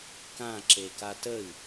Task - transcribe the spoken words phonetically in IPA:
kãǁeka təi̯

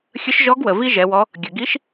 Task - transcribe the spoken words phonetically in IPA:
xʲə˧˥ʃʒɔ˧˥ɡwə˩ vi˥ʒɛ˩˧wɔ˧˥ | ɡʲə˩ɡi˧˥ʃ

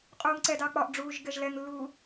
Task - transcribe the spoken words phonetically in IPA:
qʼuːŋǀɛdɑ k͡pɒʔɖ͡ʐuːʒ ɡɛʒlɛŋlːuː

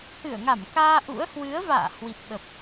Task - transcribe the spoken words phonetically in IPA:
hɨ˧˩ə̯ŋa˧˩mkaː˧ ʔṵ˧˥ə̯ hwɨ˨˦ə̯va̰ː˧˨ hwi˨˩p̚ɓə˨˩p̚

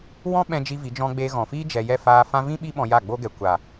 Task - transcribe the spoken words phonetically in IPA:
wɔ̃˦ɓɛ̃˧ d͡ʒi˦vi˨˦d͡ʒɔ̃˦ ɡ͡beː˧ɣɔ̃˨fiː˦ d͡ʒɛ˧ jɛ˦˨faː˧ fã˦ vĩ˦ ɓi˦ ɓɔ̃˧ja˦˨ɡ͡boː˦ɡɛ˨ kʷa˨

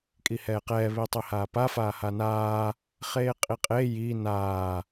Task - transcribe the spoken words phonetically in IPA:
kʼihɛːqɛː βitˤehaːpa faːhanaː | χeːqʼiqʼe ji naː

